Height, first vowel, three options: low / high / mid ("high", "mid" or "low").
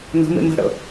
mid